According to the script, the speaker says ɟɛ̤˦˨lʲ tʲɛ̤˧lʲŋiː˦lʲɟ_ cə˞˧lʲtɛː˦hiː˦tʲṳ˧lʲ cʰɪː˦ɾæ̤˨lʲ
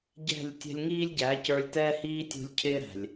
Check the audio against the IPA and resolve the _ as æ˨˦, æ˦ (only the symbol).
æ˨˦